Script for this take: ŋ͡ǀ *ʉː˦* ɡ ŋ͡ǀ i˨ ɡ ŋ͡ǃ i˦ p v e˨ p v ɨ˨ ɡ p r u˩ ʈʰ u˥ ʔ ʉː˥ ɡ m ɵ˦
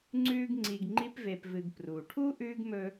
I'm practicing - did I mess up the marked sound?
no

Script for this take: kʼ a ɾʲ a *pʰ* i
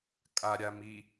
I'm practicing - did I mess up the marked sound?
yes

